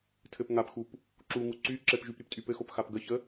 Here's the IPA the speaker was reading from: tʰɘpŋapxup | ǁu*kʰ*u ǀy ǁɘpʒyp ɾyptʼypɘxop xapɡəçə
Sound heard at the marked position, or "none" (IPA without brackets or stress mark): ŋ